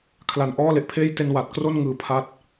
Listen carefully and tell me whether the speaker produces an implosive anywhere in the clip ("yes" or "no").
no